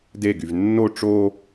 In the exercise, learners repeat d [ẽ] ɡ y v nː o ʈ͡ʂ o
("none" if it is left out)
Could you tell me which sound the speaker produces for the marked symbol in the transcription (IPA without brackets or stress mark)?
e